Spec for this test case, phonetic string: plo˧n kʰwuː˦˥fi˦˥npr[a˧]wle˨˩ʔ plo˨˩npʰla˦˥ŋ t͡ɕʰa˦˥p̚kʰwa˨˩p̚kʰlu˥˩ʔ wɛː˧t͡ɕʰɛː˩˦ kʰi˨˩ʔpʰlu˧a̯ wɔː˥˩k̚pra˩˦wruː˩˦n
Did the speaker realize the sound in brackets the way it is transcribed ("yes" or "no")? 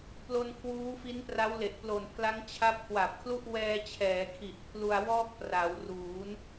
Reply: no